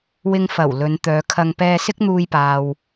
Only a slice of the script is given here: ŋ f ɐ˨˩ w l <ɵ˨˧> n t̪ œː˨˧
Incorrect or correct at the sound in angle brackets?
correct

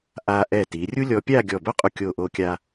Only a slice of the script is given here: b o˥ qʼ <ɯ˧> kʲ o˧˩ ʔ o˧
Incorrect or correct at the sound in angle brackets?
incorrect: u˧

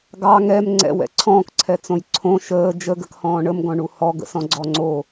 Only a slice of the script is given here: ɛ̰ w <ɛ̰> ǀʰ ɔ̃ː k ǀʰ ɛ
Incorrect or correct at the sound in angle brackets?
correct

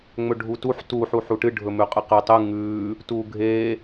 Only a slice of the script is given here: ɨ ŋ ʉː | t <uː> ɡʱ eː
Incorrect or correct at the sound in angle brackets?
correct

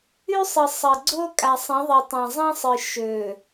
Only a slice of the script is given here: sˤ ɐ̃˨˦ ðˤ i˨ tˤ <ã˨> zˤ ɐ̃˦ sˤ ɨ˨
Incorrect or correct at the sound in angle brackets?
correct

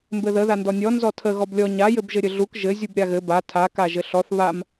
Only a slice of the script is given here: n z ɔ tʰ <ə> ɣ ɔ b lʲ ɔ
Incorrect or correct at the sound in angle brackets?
correct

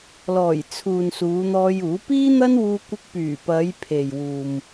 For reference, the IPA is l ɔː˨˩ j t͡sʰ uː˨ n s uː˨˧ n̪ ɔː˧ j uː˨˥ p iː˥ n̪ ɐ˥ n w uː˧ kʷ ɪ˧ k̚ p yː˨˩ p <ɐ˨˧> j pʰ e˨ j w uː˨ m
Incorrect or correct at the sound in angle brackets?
correct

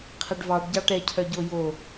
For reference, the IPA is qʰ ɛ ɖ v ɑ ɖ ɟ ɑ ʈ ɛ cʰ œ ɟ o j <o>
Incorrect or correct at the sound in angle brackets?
correct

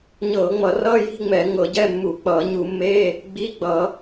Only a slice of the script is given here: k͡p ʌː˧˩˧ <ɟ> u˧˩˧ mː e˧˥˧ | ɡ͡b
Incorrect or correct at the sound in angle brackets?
incorrect: ɲ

